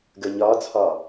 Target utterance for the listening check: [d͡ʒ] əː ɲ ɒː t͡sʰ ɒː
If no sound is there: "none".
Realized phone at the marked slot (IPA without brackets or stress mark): ɡ